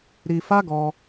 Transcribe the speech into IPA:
ɾ i˧ f a˦ ɡ ɔ˧

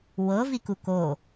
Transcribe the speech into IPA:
w ɤ v i k u k o

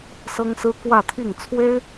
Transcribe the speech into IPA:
s ɤ˥ ŋ s ɹ̩˥ k w ä˥˧ t̪ʰ i˥˩ ŋ t͡sʰ w e˥ ɪ̯

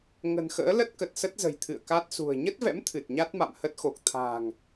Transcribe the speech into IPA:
ŋ ə̤˨˩ n x ə̰ː˧˥ l ə˦˥ t̚ k ə˨˩ t̚ s ə˦˥ t̚ z ə̤˨˩ j t̪ʰ ɨ̰˧˨ ə̯ k a˦˥ t̚ s ṳ˨˩ ə̯ ɲ ə˦˥ t̚ v ɛ̰˧˥ m t̪ʰ ɨ˨˩ t̚ ɲ a˦˥ t̚ m a̰˧˨ m h ə˦˥ t̚ x o˨˩ k̚ t̪ʰ a̤ː˨˩ ŋ

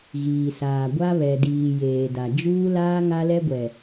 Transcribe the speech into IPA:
ɣ iː˨ s aː˨ ɡʷ a˦ β ɛ˨ d iː˨ j eː˨ d a˨ d͡ʒ uː˦ l aː˦ ŋ a˦ l ɛ˦ ɡʷ ɛ˨

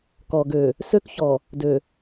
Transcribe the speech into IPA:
k ɔ˨ ɡ ø˨ | s ø˦ k ç ɔ˨ | d ø˨

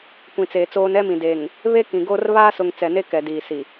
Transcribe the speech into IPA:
kʷ ĩ˨ t͡s eː˨ t͡s oː˦ n ɛ˦ m ĩ˨ d eː˨ ŋ | β e˦ k ĩ˨ ɡ o˦ r β aː˦ s ʊ˨ ŋ t͡s ɛ˨ n e˦ k ɛ˨ d iː˨ s i˨

